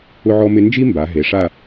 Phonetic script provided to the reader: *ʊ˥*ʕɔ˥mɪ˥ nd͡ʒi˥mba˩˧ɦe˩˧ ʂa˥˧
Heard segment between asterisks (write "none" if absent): ʊ˥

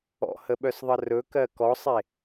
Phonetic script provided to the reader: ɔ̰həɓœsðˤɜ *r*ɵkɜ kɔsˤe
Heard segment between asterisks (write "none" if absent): r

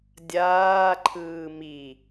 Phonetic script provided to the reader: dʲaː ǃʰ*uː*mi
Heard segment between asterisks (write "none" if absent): ɯː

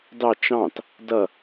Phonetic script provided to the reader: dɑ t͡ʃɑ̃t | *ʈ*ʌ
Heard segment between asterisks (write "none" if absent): d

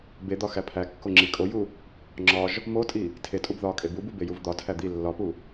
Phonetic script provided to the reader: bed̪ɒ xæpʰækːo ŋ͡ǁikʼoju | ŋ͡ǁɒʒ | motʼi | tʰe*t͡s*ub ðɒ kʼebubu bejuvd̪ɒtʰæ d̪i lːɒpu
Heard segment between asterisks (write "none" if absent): tʼ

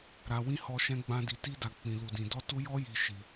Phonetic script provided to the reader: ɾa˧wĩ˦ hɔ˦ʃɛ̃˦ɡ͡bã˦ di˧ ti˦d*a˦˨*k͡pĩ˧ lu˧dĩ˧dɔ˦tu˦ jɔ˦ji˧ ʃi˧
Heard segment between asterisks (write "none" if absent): a˧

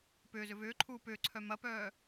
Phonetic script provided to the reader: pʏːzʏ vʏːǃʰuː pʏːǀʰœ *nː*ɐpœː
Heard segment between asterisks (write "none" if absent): m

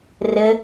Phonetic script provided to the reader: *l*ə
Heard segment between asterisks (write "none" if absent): r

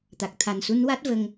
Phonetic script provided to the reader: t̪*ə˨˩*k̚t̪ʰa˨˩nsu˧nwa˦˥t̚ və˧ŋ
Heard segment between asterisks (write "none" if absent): a˨˩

